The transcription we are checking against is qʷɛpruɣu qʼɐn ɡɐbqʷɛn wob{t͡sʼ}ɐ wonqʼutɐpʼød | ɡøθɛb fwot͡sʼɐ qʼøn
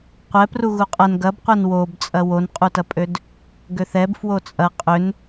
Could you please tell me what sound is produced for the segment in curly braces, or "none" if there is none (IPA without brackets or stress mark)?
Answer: t͡sʼ